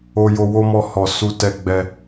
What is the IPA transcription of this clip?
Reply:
o˧jo˧ wo˦mɔ˧ hɔ˨ su˧tɛ˧ ɡ͡bɛ˧

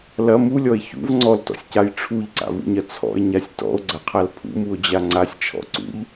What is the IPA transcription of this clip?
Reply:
lɐ mulʲɔe̯ çṵv ŋ͡ǀɔltɔ̰sʲcaj ʈ͡ʂʰuʎǀa̰vṵɲɐ t͡sʰɔ̰e̯ɲasʲ tɔ̰o̯ɡ͡ǀɐqʰal pʰṵmuo̯d͡ʑa ŋ͡ǀasʲt͡ʃʰɔ̰ ǀṵʎ

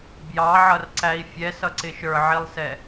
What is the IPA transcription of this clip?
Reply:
bjɑʕʌrǀæi̯ fʲɛsʌǀɪ ʃə˞ʕilˠsɛ

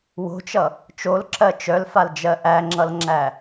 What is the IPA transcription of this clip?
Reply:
wo̤t͡ʃʌ | t͡ʃolǁɜ t͡ʃœlfald͡ʒɜ ʔæŋ͡ǁʌlŋ͡ǁæ

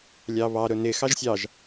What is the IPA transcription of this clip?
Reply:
lʲɑβɑ ɾʊnɪ xɑʒsʲɑʒ

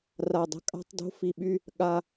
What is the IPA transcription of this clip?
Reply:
ra˧˩dˤə̤˥˧kʼa̤˥˧tˤ do̤˥fi˧˩ɓy˥˧ | ɠa˧

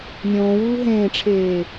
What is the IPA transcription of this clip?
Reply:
nʲõːwuː ɦẽːʈ͡ʂʰeː

